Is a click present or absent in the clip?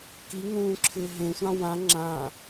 present